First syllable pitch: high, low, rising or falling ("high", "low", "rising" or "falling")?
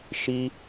high